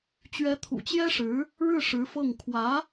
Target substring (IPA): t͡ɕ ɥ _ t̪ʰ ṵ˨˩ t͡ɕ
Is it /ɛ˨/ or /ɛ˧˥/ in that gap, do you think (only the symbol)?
ɛ˧˥